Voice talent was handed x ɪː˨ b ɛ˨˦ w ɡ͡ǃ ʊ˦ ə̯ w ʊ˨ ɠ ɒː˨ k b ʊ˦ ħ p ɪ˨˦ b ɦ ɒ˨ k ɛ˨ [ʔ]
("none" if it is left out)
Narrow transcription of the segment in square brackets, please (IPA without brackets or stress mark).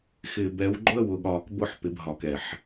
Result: ħ